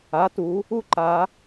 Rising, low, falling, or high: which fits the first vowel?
rising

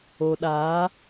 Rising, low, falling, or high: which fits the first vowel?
low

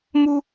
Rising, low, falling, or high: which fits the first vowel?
high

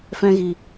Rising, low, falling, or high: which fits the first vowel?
high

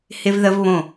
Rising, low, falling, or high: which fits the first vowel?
high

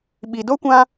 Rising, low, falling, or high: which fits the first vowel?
low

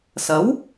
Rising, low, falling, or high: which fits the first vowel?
rising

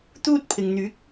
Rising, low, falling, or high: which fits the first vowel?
high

